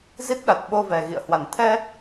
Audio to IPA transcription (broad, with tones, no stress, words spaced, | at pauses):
zi˦˥t̚ɗa˨˩t̚ ɓo˧vɛ˨˩ɣḭ˧˨ə̯hwa˨˩n t̪ʰɛ˧